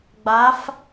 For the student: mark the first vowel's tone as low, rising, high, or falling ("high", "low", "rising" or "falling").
rising